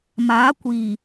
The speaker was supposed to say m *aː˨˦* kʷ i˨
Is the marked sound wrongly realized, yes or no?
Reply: no